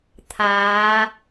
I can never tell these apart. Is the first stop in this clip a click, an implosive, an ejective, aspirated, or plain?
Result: aspirated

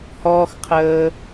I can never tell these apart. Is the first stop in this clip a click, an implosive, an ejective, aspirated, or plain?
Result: aspirated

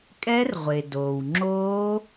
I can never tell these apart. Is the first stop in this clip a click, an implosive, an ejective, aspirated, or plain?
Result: ejective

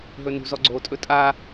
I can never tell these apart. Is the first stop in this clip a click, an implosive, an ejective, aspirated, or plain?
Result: click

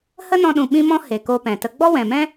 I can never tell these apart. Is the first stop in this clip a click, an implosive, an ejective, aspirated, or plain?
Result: implosive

